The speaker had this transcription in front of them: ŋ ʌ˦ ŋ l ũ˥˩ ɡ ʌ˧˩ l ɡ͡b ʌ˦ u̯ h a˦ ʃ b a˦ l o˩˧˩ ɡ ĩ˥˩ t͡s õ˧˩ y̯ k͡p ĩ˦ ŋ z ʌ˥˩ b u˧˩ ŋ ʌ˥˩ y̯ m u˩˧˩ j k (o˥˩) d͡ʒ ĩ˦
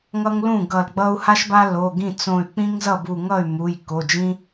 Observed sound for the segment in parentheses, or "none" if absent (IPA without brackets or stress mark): o˩˧˩